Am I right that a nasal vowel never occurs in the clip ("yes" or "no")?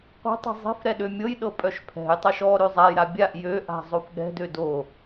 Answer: yes